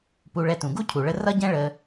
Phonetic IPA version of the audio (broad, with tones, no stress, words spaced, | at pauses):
pu˧ɭɛ˧tũ˩ ɡu˥cʰu˩ɭə˧ rʌ˥ɟɛ̃˥ ɭə˧